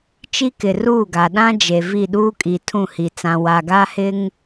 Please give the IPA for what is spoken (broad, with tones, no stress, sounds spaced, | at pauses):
t͡ʃ i˦ k ɪ˨ r uː˦˨ ɡ a˨ ɗ ã˦ d͡ʒ e˨ v i˦˨ ɗ uː˦ kʼ i˨ tʰ ũ˦˨ h i˨ t͡s ã˨ w a˨ ɡ a˦ h ɪ˦ ŋ